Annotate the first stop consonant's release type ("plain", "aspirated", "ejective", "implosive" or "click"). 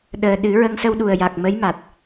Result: implosive